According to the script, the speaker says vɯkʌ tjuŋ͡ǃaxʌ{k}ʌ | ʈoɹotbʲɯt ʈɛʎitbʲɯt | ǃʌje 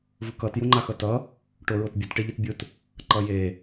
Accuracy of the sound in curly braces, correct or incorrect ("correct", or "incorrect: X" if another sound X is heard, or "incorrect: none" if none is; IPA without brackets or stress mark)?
incorrect: t